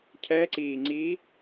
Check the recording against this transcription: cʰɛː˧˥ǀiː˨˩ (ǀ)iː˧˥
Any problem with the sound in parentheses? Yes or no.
yes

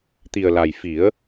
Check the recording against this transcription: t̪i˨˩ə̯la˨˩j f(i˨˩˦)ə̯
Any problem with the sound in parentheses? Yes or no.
no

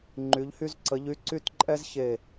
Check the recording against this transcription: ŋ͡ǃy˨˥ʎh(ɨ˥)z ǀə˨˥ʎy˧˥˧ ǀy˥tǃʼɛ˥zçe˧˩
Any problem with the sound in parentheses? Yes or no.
yes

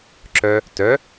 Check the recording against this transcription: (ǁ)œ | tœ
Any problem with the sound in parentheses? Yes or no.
no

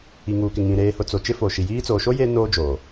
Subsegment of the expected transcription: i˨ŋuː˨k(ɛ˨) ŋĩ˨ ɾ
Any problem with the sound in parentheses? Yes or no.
yes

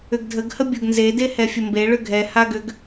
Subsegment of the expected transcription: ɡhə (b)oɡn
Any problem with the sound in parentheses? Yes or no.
yes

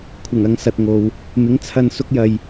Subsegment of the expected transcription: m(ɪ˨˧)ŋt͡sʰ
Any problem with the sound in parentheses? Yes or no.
yes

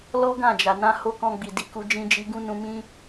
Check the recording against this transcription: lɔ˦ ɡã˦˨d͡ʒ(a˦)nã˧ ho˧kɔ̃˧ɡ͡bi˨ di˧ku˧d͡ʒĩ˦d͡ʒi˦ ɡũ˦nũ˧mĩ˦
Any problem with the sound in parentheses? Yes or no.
yes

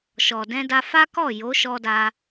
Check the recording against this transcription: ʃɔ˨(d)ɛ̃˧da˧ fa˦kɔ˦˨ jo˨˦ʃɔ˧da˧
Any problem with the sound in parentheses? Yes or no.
no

